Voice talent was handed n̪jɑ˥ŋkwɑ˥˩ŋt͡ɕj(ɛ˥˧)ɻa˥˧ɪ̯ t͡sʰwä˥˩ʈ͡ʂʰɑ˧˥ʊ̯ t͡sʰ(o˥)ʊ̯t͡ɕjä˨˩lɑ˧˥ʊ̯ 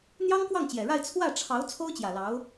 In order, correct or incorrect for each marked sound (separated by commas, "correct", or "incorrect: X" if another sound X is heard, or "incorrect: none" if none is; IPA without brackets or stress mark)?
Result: incorrect: ɛ˨˩, correct